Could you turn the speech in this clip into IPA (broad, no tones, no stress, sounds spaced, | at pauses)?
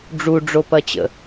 ɖ͡ʐ u ɖ͡ʐ o p ɐ t͡ɕ ə̰